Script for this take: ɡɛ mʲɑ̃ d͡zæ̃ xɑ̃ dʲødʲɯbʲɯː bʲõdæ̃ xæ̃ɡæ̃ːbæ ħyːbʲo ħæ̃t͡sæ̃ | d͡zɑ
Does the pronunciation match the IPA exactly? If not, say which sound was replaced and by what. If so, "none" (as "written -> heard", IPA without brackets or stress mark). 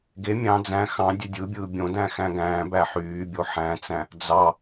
ɛ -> e